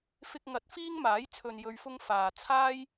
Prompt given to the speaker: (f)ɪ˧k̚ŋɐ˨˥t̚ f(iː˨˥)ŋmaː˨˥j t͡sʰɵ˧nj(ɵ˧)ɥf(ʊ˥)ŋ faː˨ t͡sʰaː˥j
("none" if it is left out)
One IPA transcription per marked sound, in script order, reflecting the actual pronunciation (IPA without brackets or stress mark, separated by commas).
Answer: f, iː˥, ɵ˧, ʊ˥